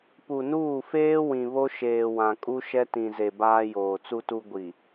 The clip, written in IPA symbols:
p u˨ n uː˦˨ f eː˦ w ĩ˨ β o˦ ʃ eː˨ w ã˨ kʼ u˦ ʃ ɛ˦ t ĩ˨ z e˨ b aː˦ j oː˨ t͡s u˦ t u˦ ɡʷ i˨

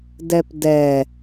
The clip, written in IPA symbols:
d ɛ p d ɛ

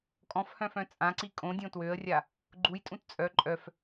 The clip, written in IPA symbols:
kʼ ɔ̃ f h œ̃ f œ̃ t͡sʼ ã ǀ i kʼ õ dʲ õ t w ø ə̯ rʲ a | ɡ͡ǃ u j tʼ ũ t t͡sʼ œ ǃʼ œ f

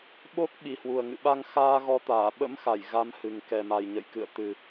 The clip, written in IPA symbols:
ɓ o˦˥ k̚ ɓ i˨˩ h w u˨˩ ə̯ ŋ ɨ̰˧˨ ɓ a˧ ŋ x aː˧ ɣ ɔ˨˦ t̪ aː˧˩ ɓ ə̰˧˥ m x a˧˩ j ɣ a˨˦ m h ɨ˨˩ ŋ k ɛ˨˩ m a˨˩ j ɲ ə̰˧˨ j k ɨ̰˧˨ ə̯ t̪ ɨ˨˩

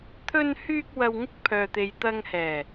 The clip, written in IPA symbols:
t̪ʰ ɵ˧ n h yː˧ k̚ w ɐ˨ w ŋ ɪ˧ k̚ pʰ œː˨ t̪ e˨ j t̪ ɐ˧ ŋ h ɛː˨˩

